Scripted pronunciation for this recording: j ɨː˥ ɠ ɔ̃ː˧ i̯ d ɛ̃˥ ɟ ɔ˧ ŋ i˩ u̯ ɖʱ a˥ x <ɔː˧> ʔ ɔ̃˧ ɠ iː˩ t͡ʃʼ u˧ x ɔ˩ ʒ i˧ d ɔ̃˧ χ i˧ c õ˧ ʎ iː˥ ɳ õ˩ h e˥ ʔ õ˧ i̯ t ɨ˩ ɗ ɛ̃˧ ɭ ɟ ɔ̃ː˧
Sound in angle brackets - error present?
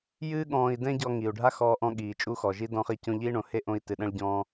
no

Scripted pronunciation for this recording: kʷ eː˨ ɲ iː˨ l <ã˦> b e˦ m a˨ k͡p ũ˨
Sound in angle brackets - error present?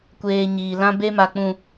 no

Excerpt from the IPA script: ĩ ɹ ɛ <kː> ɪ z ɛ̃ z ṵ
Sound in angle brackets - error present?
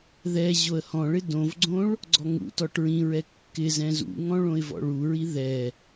no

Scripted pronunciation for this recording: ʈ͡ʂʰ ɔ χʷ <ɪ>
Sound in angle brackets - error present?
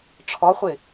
no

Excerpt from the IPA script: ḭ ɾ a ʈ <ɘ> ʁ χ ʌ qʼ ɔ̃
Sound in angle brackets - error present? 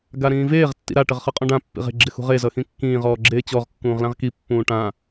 no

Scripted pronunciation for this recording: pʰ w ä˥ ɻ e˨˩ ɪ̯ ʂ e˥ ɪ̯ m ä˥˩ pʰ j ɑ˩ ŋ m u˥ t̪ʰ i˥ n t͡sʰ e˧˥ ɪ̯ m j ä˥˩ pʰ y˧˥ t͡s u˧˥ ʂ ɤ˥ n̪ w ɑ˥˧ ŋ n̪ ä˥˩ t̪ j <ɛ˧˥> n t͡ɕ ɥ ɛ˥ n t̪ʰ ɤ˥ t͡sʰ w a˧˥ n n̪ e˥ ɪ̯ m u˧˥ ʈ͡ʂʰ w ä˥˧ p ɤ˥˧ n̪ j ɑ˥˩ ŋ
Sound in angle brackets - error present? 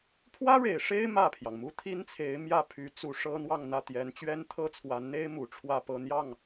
no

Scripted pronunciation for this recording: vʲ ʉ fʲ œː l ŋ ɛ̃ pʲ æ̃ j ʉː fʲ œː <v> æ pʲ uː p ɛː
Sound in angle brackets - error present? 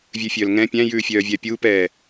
yes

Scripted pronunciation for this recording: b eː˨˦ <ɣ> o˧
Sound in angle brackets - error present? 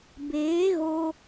no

